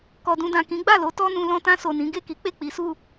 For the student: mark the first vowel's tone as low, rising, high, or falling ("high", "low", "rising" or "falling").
low